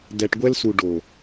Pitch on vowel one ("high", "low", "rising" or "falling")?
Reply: low